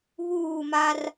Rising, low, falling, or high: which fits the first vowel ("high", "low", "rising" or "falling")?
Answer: falling